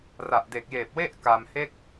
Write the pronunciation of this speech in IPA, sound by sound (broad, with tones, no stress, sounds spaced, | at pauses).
r a˨˩ ʔ d e˨˩ k̚ j eː˨˩ p̚ w e˥˩ ʔ k a˧ m h e˥˩ k̚